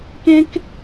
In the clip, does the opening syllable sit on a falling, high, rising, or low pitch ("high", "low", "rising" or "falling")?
high